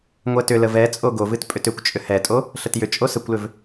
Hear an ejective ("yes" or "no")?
yes